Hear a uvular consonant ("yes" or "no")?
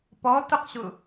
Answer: yes